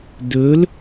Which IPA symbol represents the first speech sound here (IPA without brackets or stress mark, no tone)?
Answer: d